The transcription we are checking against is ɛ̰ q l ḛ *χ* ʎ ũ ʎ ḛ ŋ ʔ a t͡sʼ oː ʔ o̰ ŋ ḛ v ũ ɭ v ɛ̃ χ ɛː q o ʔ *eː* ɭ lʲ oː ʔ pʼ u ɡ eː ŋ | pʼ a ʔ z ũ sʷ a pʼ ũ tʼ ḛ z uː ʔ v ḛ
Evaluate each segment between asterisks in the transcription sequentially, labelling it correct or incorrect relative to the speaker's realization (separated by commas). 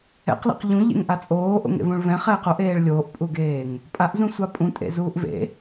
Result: incorrect, correct